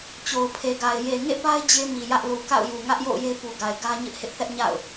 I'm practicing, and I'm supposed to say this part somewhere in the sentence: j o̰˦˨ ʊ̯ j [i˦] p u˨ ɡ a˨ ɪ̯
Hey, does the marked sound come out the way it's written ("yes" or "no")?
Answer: no